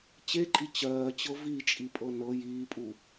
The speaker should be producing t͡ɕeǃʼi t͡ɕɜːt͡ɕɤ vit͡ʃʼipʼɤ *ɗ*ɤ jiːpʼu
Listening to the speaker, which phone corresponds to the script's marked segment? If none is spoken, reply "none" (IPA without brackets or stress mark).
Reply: n